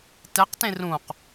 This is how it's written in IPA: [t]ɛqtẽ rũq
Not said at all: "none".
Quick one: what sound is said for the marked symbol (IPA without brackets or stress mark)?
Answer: t